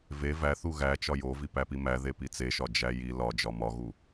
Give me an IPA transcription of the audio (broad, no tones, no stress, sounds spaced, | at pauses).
v e v æ θ u ɣ æ t͡ʃ ɒ j o v i p æ p i m æ ð e p i t͡s e ʃ ɒ d͡ʒ æ j i l ɒ d͡ʒ ɒ m ɒ ɣ u